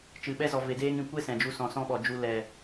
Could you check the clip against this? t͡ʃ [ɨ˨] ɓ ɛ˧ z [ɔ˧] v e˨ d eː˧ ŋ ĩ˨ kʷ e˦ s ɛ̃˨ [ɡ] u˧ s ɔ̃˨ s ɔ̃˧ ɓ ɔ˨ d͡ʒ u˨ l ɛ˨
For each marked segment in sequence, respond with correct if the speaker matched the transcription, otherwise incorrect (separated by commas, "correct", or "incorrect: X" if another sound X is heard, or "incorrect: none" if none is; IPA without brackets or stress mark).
correct, incorrect: ɔ˨, incorrect: d͡ʒ